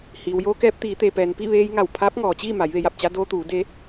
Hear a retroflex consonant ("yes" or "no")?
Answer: no